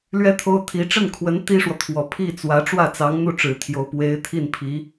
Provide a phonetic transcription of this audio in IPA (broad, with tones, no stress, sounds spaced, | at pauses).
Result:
l ɥ ɛ˥ t̪ʰ o˥ ʊ̯ t̪ʰ i˧˥ ʈ͡ʂ ə˥˩ n kʰ w ə˧˥ n t̪ i˥ ʂ w ɔ˨ t̪ʰ w ɔ˨˩ pʰ i˥˩ t͡s w ä˧˥ ʈ͡ʂ w ä˥˩ t͡s ɑ˧˥ ŋ n̪ u˥˩ ʈ͡ʂ ɻ̩˨˩ t̪ʰ j o˧˥ ʊ̯ p w e˧˥ ɪ̯ t̪ʰ i˥˩ n pʰ i˧˥